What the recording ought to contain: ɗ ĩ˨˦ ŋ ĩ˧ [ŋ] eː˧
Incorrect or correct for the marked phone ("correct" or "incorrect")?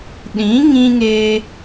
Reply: correct